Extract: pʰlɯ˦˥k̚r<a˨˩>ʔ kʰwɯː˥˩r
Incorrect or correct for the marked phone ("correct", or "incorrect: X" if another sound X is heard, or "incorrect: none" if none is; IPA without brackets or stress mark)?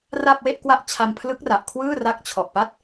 correct